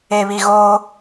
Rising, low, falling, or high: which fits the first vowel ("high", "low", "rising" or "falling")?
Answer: low